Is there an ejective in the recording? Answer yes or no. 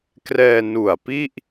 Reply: no